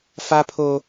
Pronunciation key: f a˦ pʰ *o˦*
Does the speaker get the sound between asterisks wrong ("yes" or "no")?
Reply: no